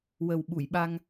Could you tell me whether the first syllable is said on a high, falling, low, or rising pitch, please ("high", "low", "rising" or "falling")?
low